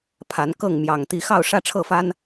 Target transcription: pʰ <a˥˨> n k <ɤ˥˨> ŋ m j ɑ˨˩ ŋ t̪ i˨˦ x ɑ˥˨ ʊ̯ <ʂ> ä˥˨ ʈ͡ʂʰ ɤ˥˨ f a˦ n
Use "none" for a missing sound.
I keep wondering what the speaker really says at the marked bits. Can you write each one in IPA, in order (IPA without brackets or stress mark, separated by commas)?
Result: a˨˦, ɤ˥˨, ʂ